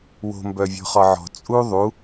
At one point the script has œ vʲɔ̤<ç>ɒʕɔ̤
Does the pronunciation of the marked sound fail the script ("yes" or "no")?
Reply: yes